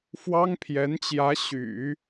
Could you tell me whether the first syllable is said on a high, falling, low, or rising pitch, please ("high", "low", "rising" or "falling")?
high